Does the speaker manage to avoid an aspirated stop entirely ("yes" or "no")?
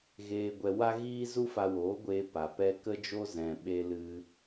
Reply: yes